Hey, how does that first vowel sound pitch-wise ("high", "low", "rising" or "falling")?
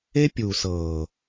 high